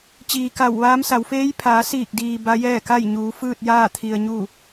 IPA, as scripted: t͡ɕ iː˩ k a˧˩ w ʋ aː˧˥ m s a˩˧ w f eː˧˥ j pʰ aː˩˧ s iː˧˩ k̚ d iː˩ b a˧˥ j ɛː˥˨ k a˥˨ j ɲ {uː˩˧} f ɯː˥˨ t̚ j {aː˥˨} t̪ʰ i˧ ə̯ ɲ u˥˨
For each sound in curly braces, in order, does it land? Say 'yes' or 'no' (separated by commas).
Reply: yes, yes